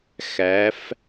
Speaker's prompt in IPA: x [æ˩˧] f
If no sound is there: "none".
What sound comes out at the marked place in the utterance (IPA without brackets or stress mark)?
æ˩˧